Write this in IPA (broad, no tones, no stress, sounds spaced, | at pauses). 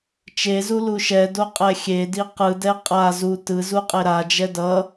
t͡ʃ e z u l u ʃ ɛ d o qʼ ɛ xʲ e d i q ɯ d ɛ qʼ a z u t ɯ z u qʼ e ɾ a d͡ʒ ɛ d ʌ